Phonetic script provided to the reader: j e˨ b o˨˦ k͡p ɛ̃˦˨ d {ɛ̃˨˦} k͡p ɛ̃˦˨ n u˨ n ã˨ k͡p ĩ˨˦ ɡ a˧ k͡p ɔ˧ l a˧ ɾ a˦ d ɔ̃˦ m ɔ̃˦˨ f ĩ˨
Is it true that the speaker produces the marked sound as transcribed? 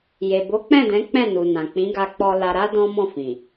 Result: yes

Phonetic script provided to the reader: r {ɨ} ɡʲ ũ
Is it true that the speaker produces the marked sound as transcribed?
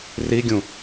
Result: no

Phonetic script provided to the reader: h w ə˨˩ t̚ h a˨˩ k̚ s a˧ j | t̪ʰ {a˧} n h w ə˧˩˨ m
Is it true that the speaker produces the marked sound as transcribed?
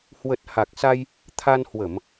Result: yes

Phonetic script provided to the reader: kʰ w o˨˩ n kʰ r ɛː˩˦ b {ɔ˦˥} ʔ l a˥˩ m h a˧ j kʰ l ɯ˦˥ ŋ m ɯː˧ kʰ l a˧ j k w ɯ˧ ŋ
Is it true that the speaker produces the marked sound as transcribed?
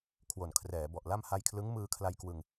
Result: no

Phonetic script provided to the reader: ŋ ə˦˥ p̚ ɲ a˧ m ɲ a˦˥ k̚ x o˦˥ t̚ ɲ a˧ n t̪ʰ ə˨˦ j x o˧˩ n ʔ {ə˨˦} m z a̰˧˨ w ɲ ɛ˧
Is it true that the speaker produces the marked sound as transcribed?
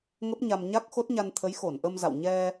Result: no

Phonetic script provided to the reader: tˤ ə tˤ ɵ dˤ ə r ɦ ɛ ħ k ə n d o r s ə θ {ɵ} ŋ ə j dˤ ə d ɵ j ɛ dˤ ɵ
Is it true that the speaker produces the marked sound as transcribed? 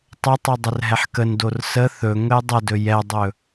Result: yes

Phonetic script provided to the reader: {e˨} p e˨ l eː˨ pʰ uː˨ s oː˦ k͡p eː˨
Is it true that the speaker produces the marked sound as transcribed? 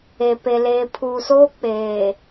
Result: yes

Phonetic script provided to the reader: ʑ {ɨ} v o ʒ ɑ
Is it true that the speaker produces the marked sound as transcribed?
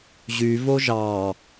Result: no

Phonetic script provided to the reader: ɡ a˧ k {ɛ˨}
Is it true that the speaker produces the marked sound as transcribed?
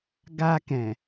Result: no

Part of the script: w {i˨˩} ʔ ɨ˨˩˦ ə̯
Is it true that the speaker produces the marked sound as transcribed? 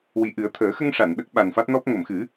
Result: yes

